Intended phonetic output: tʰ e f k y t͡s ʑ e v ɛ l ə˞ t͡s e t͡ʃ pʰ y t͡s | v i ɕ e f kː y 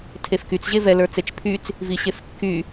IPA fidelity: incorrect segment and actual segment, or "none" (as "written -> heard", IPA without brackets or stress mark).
none